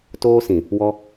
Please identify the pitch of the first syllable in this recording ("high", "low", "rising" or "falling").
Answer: high